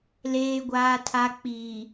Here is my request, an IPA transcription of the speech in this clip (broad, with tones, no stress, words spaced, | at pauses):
leː˨ɡʷaː˨tʰa˨ k͡piː˨